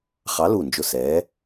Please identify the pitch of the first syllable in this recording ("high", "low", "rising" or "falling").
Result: rising